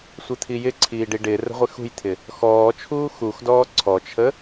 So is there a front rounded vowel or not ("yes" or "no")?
no